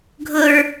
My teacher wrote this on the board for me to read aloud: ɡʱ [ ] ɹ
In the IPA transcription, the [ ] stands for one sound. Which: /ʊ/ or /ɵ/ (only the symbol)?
ʊ